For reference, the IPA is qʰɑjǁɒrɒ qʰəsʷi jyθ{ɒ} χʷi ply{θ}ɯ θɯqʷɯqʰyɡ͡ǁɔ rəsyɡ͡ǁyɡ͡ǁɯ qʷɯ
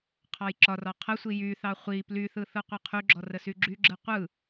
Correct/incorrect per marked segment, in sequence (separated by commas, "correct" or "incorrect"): incorrect, correct